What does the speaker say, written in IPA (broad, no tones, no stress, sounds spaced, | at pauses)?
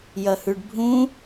j ɐ h ʉ ɖ bʱ ũ